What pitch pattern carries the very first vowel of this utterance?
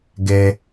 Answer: high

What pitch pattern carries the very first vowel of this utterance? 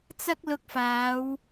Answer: high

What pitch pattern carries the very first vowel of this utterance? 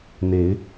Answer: rising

